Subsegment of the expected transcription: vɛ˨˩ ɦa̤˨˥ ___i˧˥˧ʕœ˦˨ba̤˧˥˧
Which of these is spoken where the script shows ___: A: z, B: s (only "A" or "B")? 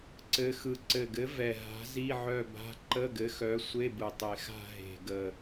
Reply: A